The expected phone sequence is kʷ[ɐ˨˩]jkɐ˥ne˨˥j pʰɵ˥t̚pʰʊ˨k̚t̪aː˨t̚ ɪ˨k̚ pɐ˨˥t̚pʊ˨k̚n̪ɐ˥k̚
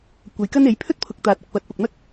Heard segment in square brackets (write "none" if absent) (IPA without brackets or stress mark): ɐ˨˧